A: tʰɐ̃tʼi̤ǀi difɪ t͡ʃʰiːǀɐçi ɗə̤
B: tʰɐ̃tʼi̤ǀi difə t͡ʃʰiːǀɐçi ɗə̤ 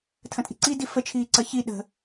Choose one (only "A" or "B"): B